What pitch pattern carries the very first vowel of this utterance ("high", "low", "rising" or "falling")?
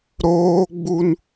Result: high